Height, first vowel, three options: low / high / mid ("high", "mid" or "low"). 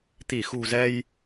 high